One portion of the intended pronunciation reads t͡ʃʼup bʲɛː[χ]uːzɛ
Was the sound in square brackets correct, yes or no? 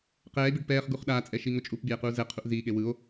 no